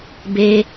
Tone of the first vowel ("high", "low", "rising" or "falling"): high